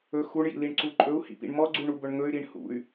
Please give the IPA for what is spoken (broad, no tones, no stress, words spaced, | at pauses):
ɵ xuɳjḭliɳǀu ǃʼɵu̯hḭpḭɳ mɔɡ͡ǀuɳubɵɳ ŋɵy̯ɾiɳ hṵy̯